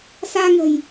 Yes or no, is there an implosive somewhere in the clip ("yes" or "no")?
no